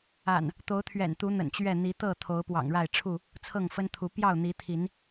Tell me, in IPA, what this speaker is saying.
a̰˨˩ n | t̪ o˨˦ ʊ̯ t̪ʰ ɥ ɛ̰˨˩ n t̪ u˨˦ n̪ ə̰˨˩ n t͡ɕ ɥ ɛ˥˨ n̪ i˨˦ t̪ ɤ˥˨ t̪ʰ o˨˦ ʊ̯ p w ɑ̰˨˩ ŋ ɻ a˥˨ ɪ̯ ʈ͡ʂʰ u˥˨ | t͡sʰ ɤ˥˨ ŋ f ə˦ n t̪ʰ u˨˦ p j ɑ˥˨ ʊ̯ n̪ i˨˦ t̪ʰ i˨˦ n

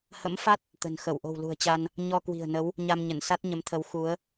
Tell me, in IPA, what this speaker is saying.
h ə̰˧˥ m f a˦˥ t̚ | t̪ ə̤˨˩ n x ə˧˩ w ʔ o̤˨˩ w l ṳ˨˩ ə̯ t͡ɕ a˧ n | ɲ ɔ˧ k w i̤˨˩ ə̯ n ə˨˦ w | ɲ a˧ m ɲ ə˧˩ n s a˦˥ t̚ ɲ ə˨˦ m t̪ʰ ə˨˦ w x u˨˦ ə̯

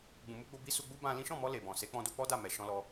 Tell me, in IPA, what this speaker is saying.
ɡ͡b ũ˨ m u˧ ɡ͡b o˧ b i˦ s u˧ ɡ͡b u˦ b ã˧ l ĩ˦ ʃ ɔ̃˦˨ m ɔ˧ l e˨ b ɔ̃˨ s e˨˦ k͡p ɔ̃˧ d o˦ k͡p ɔ˦ d a˦˨ m ɛ˨ ʃ ɔ̃˧ l ɔ˧

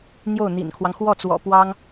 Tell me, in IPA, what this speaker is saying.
n̪ j o˥˩ ʊ̯ n̪ ḭ˨˩ n kʰ w ɑ˦ ŋ x w ɔ˥˩ t͡s w ɔ̰˨˩ p w ɑ˥ ŋ

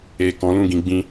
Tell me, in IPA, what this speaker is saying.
e˨ k ɔ̃˨˦ l ũ˦˨ ɡ ĩ˧ ɡ͡b ĩ˧

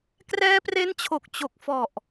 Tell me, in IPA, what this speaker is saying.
k r ɛː˦˥ p r e˦˥ n t͡ɕʰ o˨˩ k̚ t͡ɕ o˨˩ k̚ f ɔ˨˩ ʔ

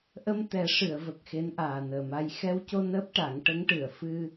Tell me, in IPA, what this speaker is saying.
ʔ ə˧ m t̪ ɛ˨˩˦ ʂ ɨ˨˩˨ ə̯ v ə˨˩ k̚ x e˧˥ n ʔ aː˨˩ n əː˨˩ m a˧ j x ɛ˧ w c o˧ n əː˦˥ p̚ ʈ a˨˩˦ ŋ ʈ ə˧˥ ŋ ʈ ɨ˨˩˨ ə̯ f ɨ˧

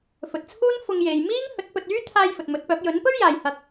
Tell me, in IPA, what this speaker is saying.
f ɵ˨ t̚ t͡sʰ uː˥ n f ʊ˧ ŋ j e˨ j m iː˥ ŋ h ɵ˨˥ t̚ p ɵ˨ t̚ yː˥ t̪ʰ aː˧ j f ɵ˨ t̚ m ɵ˨˥ t̚ p œː˨˥ k̚ j ɵ˨˥ n p ɵ˥ ɥ j aː˨ j h ɐ˧ k̚

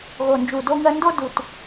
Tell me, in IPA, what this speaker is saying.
ɣ o˨˩ n d͡ʒ u˨˩ d o˥ ŋ ɜ˥ n d o˥ d u˨˩ t

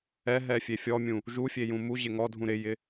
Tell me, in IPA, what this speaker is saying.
ɛ ɦ ɛ fʲ e fʲ ɔ mʲ ũ | ʒ u fʲ e j ũ m u ʑ ɪ ŋ ɔ dʱ ũ ɾ ɪ j ɪ

